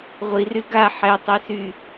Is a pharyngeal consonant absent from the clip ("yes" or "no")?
no